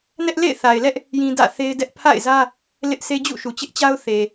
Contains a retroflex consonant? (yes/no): no